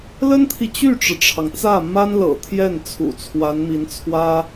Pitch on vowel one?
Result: high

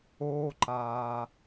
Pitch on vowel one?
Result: high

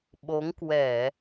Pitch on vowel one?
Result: rising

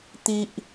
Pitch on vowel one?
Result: high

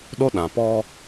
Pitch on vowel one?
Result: high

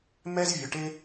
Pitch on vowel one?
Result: high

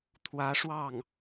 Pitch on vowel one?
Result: rising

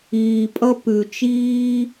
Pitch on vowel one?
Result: low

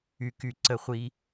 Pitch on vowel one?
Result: low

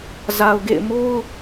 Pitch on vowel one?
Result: low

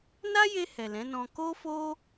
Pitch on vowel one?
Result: high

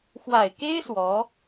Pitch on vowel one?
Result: low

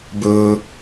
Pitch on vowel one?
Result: low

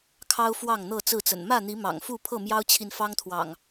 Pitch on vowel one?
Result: high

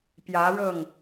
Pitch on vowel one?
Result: rising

